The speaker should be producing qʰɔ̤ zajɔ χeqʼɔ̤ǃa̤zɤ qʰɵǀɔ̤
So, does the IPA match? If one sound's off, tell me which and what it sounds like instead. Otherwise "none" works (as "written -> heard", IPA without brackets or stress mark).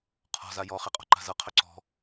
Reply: none